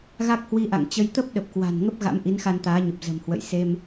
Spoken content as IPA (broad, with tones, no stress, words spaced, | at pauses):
ɣa˦˥k̚hwi˧ʔa̰˧˨ŋ t͡ɕə˧j t̪ə˦˥p̚ɗə˨˩p̚kwa̤˨˩n ŋə˦˥p̚ɣa̰˧˥m ʔi˨˦nxa˧nt̪aː˨˦ɲə˨˩p̚ zə̤˨˩mhwə̰˧˨jse˧m